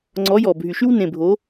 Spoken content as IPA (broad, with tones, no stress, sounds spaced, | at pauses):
ŋ͡ǀ ɔ˨˦ j ɔ˨˩ bʱ y˨˩ ʃ y˦ w n ẽ˨˩ bʱ o˨˦